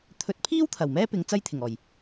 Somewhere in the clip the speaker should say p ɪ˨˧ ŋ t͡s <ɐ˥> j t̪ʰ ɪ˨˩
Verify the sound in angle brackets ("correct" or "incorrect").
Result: correct